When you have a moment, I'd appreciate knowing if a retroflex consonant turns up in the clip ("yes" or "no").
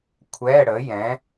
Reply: yes